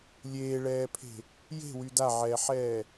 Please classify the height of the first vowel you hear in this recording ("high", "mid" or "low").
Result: mid